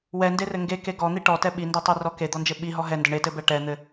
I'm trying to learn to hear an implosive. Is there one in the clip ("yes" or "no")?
yes